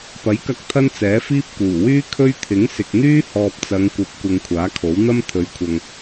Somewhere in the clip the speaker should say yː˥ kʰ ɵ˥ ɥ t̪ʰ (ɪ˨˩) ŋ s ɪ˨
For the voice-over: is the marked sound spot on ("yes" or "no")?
no